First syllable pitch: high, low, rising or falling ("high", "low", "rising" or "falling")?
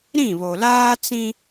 falling